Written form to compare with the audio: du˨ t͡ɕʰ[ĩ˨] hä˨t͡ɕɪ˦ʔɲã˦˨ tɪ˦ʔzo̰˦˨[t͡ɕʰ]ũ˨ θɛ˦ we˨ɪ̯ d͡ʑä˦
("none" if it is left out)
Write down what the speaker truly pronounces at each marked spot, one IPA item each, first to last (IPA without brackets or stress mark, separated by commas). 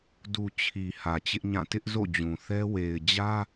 i˨, d͡ʑ